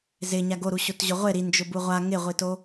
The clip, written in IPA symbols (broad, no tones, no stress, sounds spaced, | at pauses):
z ɪ ɲ a ɡ o ɾ u ɕ o t ʑ ʊ ʁʷ ɪ ɾ i n d͡ʒ ʊ b u ʁʷ a ŋ ɪ ʁʷ i t o